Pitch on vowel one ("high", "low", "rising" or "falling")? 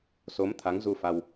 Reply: rising